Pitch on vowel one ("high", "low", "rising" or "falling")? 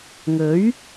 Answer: rising